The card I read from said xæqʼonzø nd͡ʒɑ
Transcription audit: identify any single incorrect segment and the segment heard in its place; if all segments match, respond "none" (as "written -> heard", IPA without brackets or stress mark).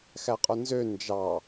none